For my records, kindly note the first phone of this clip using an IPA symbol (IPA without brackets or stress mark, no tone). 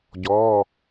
ɟ